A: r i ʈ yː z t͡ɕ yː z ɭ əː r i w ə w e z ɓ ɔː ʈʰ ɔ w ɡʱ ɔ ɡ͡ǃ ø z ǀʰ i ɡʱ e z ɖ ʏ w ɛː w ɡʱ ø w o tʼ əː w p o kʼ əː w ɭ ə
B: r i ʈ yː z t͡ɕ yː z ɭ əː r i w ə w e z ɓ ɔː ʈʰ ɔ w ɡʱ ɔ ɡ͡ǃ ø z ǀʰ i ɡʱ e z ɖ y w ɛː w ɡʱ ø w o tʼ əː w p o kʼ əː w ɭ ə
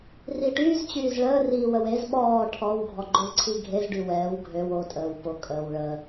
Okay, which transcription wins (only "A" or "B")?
B